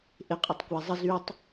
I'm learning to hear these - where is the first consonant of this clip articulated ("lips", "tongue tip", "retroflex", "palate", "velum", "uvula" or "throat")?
throat